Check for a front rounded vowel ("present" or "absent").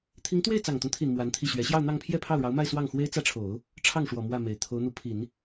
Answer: absent